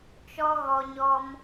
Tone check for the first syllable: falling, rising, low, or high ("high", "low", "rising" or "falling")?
high